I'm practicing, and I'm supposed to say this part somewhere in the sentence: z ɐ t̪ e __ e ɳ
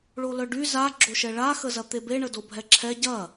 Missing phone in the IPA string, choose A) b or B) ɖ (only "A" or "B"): A